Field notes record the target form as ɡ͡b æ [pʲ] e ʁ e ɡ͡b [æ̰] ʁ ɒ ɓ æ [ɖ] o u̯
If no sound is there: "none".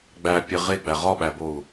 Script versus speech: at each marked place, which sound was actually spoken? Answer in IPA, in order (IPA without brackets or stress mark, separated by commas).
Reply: pʲ, æ, b